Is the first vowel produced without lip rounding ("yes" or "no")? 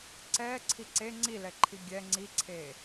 yes